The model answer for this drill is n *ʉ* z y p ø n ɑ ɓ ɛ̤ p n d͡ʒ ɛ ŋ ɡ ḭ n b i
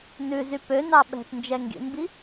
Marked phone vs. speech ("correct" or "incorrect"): correct